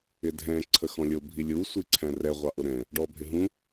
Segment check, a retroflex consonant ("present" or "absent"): present